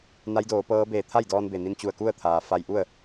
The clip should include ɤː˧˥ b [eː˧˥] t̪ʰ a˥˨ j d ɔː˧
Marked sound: incorrect: eː˧˩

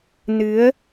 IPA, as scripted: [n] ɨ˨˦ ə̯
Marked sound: correct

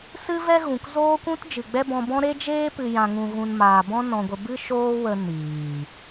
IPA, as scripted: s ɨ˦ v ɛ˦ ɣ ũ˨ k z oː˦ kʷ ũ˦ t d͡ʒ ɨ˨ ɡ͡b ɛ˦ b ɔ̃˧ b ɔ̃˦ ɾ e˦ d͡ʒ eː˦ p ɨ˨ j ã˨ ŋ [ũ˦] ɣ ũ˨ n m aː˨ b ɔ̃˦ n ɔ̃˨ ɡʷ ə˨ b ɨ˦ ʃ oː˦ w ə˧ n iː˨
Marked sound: incorrect: ũ˨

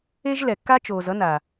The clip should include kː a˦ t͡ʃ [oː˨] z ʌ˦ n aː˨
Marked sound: correct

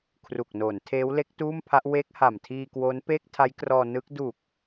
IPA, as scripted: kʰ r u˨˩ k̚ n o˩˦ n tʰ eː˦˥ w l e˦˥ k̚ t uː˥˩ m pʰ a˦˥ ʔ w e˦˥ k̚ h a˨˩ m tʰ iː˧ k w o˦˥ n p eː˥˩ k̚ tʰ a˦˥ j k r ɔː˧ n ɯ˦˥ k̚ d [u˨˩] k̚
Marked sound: correct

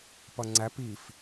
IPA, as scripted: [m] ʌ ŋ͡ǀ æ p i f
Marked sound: incorrect: p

